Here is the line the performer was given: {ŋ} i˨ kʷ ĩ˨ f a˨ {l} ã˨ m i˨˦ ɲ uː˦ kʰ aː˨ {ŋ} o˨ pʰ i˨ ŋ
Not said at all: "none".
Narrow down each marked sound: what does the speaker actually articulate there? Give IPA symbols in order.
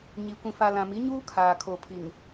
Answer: ɲ, l, kʰ

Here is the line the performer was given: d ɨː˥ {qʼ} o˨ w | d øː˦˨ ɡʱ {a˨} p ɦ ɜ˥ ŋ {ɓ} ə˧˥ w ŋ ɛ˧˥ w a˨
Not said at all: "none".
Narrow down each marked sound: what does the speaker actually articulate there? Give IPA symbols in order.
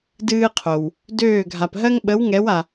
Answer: qʰ, a˨, ɓ

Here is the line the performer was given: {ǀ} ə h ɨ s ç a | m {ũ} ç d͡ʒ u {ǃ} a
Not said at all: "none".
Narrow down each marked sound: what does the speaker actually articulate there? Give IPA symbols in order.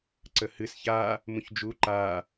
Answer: ǀ, ũ, ǃ

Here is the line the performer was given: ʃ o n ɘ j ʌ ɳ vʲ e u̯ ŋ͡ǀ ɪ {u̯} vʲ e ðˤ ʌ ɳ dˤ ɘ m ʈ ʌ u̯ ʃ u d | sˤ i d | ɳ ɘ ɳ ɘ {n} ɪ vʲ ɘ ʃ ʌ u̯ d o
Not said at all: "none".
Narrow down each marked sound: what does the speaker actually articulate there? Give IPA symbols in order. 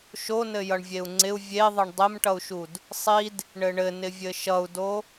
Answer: u̯, n

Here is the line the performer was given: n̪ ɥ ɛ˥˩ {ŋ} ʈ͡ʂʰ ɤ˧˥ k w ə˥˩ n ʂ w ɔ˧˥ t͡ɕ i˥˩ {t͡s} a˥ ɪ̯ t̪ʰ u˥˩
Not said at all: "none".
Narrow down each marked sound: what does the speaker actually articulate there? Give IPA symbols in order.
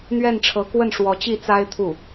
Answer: n, t͡s

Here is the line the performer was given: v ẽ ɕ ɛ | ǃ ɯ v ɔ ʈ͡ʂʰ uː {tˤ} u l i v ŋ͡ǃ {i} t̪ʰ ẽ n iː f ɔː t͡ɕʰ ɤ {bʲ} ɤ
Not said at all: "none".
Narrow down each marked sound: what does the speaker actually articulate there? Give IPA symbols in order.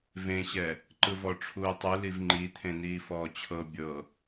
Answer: tˤ, i, bʲ

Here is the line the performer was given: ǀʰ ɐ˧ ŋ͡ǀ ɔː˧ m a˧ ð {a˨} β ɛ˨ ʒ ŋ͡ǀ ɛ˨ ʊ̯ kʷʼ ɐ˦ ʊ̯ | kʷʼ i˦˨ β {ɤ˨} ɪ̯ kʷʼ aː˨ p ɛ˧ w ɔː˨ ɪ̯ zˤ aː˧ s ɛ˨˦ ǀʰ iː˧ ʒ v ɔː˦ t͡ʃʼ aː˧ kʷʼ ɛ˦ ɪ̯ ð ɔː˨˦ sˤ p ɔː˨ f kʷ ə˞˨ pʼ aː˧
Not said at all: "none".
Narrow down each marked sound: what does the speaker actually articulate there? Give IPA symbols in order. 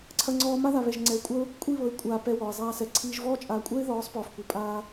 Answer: a˨, ɤ˨

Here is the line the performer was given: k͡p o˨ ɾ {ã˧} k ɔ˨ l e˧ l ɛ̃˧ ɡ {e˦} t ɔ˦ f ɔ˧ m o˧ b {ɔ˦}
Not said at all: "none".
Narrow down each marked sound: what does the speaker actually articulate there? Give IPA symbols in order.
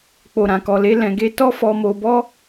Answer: ã˨, e˦, ɔ˦

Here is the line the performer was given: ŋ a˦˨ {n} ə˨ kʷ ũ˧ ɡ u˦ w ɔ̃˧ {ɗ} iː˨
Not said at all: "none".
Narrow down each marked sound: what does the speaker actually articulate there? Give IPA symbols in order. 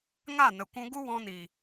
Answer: n, n

